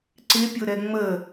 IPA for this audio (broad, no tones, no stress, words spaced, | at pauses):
ǀɪpʲʊɾɛ ŋ͡mə